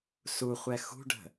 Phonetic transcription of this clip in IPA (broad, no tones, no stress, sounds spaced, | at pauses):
s u χʷ ɛ x ṳ ɖ ə̤